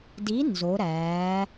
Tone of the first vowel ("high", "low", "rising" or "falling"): rising